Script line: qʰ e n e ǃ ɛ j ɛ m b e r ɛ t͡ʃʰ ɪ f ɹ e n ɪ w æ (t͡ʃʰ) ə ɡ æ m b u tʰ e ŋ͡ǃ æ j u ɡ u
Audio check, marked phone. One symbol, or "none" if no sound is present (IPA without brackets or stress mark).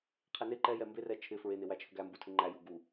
t͡ʃʰ